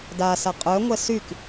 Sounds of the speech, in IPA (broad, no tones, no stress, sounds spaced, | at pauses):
d a s a qʼ œ ŋʷ ɛ s y k